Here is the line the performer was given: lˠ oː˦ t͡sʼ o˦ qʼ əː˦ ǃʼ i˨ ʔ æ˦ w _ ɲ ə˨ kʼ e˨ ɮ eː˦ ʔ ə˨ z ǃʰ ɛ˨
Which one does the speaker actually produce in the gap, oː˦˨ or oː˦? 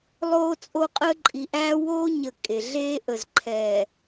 oː˦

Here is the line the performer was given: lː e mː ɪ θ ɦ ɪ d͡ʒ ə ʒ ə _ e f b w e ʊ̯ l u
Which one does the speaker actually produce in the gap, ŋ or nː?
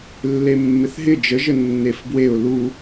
nː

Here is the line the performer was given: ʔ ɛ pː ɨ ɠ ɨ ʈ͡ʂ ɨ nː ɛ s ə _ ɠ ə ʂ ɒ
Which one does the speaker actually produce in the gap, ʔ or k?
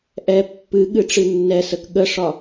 k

